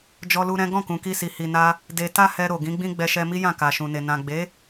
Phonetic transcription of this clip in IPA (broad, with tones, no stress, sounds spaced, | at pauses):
d͡ʒ ɔ˧ l u˧ ɾ ɛ̃˦ ɡ ɔ̃˦˨ k ũ˨ k i˧ s i˨ h i˨ n a˧ | d e˧ t a˦ h ɛ˧ ɾ o˨ ɡ ĩ˨˦ ɡ͡b ĩ˦ ɡ͡b ɛ˧ ʃ ɛ˧ m i˦ j ã˦˨ k a˨ ʃ ũ˨ n e˨ n ã˨ ɡ͡b e˨˦